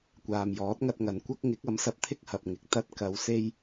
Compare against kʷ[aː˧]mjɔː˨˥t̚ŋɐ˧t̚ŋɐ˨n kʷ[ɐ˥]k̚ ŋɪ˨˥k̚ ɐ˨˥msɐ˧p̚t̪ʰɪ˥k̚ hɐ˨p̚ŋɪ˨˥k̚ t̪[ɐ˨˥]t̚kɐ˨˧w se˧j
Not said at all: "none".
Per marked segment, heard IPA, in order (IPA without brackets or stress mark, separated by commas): aː˨, ɐ˥, ɐ˧